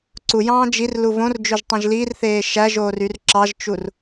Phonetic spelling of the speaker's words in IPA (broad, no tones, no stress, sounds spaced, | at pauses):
ǀ u j ɑ̃ː d͡ʒ i r l u v õ r d͡ʒ ø ʒ tˤ ĩ ʒ l i r θ eː ʃ æ ʒ oː r y r ǁ ɑ ʒ t͡ʃ u r